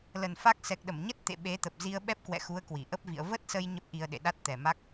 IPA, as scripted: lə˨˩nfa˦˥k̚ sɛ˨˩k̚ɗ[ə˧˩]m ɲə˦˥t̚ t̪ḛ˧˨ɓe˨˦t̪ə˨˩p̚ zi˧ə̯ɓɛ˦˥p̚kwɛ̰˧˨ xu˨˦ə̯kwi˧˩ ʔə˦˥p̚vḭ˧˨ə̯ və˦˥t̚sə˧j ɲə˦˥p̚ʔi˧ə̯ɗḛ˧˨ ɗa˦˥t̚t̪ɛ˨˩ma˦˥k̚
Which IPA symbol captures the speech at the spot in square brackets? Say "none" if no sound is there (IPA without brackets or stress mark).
ə˧˩